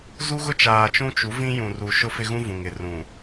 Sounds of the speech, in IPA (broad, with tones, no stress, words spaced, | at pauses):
zu˦ɣʊ˦t͡ʃaː˨ t͡ʃũ˦t͡ʃu˨˦vĩ˦ jũ˨ru˨ ʃʊ˦fɪ˦ɣũ˦vũ˨ŋ ɪ˨ rũ˨